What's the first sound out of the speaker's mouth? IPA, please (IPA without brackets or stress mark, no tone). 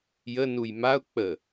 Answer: j